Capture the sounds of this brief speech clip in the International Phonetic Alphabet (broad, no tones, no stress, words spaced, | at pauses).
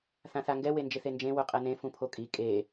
θãθaŋɡɛ wend͡ʒɪθend͡ʒẽ wʊqʼɛnẽ fũpʰokʼi kʼe